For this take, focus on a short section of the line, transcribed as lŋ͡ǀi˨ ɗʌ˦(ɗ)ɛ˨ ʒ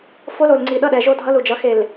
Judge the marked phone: correct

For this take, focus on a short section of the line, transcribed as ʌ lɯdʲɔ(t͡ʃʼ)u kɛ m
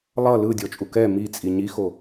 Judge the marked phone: correct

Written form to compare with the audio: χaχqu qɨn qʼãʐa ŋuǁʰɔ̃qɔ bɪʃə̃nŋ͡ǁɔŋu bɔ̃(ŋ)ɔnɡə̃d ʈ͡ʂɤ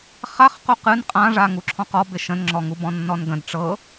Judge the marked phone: incorrect: nː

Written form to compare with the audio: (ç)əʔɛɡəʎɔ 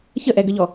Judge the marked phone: correct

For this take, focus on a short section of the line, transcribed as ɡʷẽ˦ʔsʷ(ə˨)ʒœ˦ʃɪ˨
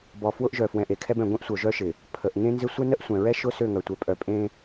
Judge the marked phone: incorrect: œ˨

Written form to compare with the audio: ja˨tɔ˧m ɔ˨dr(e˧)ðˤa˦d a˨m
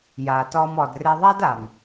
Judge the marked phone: correct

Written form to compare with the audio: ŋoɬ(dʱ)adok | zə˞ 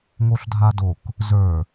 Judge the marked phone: correct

